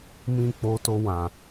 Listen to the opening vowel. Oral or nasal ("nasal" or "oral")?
nasal